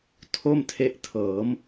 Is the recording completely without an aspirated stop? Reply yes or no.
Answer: no